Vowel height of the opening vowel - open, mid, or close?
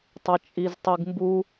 open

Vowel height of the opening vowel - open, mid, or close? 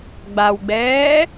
open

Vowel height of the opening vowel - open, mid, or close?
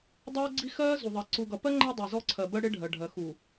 mid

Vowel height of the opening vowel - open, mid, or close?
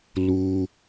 close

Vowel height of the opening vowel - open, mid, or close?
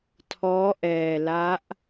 mid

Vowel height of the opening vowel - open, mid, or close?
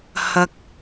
open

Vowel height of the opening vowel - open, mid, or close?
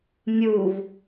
close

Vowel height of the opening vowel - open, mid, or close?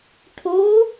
mid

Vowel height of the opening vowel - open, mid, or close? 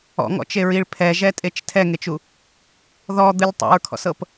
mid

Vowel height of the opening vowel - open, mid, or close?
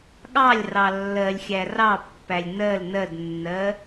open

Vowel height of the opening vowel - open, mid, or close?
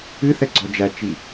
close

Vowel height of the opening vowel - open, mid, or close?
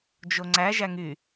mid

